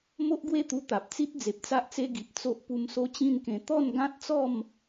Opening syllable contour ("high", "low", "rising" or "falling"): high